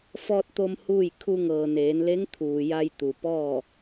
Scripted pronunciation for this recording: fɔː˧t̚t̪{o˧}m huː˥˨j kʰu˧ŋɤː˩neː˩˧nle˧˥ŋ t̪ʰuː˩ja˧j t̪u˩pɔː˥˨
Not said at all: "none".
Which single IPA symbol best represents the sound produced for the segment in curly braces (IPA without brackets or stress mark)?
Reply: o˧